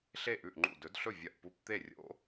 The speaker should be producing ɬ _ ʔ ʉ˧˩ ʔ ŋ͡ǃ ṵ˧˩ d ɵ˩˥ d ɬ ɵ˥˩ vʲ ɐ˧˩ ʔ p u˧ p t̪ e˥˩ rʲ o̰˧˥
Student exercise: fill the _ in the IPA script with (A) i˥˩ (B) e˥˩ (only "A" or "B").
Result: B